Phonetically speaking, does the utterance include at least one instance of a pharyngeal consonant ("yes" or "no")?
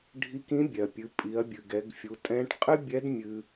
no